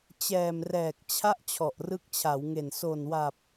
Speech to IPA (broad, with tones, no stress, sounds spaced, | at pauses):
t͡ɕ ɛː˨˩ m r ɛː˨˩ k̚ t͡ɕʰ a˥˩ ʔ t͡ɕʰ ɔ˨˩ ʔ r ɯ˦˥ k̚ t͡ɕʰ a˩˦ w ŋ e˨˩ n s o˨˩ n w a˨˩ p̚